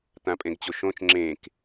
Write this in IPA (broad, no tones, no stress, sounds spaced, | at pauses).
t ã pʼ ẽ ɡ t͡ɕ o ʃ õ t͡ʃ ŋ͡ǁ ẽ k